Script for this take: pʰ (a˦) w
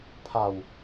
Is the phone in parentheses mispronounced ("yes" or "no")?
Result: yes